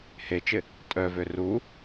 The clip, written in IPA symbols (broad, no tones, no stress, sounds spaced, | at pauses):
h e t͡ʃ ɪ | tʼ œ v ø r u